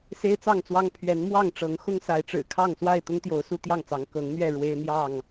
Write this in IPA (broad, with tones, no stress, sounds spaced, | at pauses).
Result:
s e˦ ɪ̯ t͡s ɑ˥˨ ŋ t͡s w ɑ˦ ŋ pʰ ɥ ɛ˨˦ n m w ɑ˥˨ ŋ ʈ͡ʂ ɤ˨˦ ŋ x ʊ˦ ŋ s a˨˦ ɪ̯ ʈ͡ʂ ɻ̩˨˩ kʰ ɑ˥˨ ŋ s w a˥˨ ɪ̯ t̪ ʊ˦ ŋ t̪ j o˨˦ ʊ̯ s u˦ t̪ j ɑ˥˨ ŋ t͡s ɑ˨˦ ŋ k ɤ˨˦ ŋ n̪ ɥ ɛ˥˨ ɻ w e˦ ɪ̯ n̪ j ɑ˥˨ ŋ